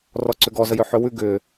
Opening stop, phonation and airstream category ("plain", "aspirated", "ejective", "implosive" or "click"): click